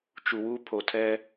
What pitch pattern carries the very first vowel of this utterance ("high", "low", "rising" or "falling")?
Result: low